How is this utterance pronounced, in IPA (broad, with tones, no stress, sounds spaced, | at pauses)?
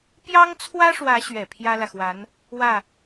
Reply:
p j ɑ˥ ŋ t͡sʰ w ä˥ ʂ w ä˧˥ ɕ ɥ ɛ˨˩ pʰ j ä˥ l ä˨ x w a˧˥ n | w ä˥˩